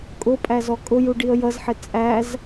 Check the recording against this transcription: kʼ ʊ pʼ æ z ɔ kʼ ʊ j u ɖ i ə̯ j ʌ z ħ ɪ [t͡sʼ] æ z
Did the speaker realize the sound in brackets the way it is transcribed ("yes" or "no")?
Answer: yes